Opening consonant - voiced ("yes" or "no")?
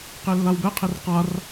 no